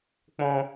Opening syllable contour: high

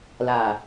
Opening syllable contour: low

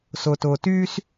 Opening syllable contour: low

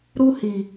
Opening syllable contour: high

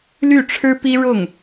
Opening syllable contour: falling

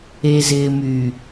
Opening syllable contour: low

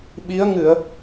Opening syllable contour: rising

